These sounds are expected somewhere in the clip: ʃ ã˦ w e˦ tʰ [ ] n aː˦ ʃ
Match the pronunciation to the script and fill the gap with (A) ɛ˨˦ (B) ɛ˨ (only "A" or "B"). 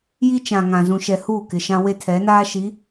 A